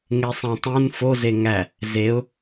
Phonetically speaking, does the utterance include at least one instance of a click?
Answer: no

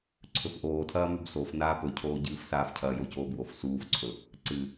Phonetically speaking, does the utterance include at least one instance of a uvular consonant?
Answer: no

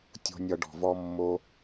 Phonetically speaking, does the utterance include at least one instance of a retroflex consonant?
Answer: yes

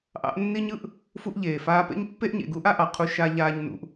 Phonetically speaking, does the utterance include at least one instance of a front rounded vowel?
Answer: no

